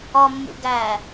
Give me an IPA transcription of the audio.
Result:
ɒmːṵ ɡæ

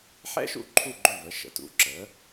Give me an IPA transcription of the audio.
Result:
ħɛ̰˥ ʃṵ˥ǃʰu˥˩ɡ͡ǃø˥˩ və˩˥ʃə̰˩˥tṵ˩˥ ǁə˩˥

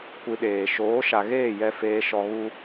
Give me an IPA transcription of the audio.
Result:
kʷi˧ɗeː˨ ʃoː˨˦ʃa˨ɣeː˦˨jɛ˧ feː˧ ʃɔ˧ɣu˦

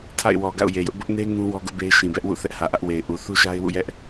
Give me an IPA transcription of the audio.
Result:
tʰa̰˦˨ɪ̯wɔ˨ ɡa̰˦˨ʊ̯je˨jʊ˦ʔ bʊ˦ʔne˦ ŋũ˦ wɔ˦ɡʊ˦ʔbe˦ɪ̯ ʃĩ˨bɛ˦ʔwṵ˦˨θɛ˦ʔ hä˨ʔä˦ʔwe˨ɪ̯ʔu˨ θu˦ʃa˦ɪ̯wṵ˦˨jɛ˦ʔ

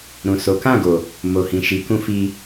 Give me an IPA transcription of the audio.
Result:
ɾũ˨so˨˦ kã˦˨ɡo˨ | mo˨hĩ˨ʃi˨˦ kũ˧fi˧

